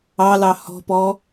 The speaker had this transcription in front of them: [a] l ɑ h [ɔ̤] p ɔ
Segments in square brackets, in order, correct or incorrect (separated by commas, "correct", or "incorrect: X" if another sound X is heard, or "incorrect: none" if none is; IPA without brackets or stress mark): incorrect: ɑ, correct